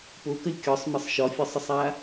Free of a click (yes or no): yes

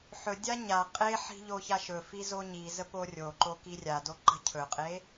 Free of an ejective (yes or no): no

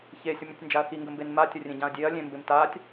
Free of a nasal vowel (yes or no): no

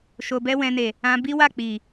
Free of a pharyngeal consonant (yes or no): yes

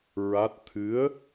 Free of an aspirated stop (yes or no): no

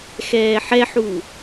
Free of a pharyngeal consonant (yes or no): no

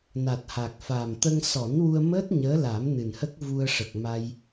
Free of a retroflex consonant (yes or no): no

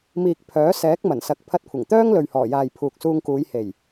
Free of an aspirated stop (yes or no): no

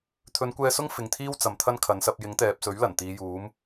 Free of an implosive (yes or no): yes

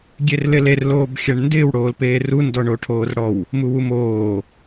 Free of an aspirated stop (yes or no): no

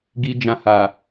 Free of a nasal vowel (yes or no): no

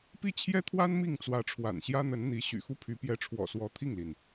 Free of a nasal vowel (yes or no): yes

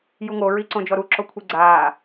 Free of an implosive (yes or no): yes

